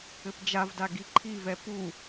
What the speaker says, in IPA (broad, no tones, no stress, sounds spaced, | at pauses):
ɘ p d͡ʒ a v d a ɡ i ǃʰ i v ɛ p u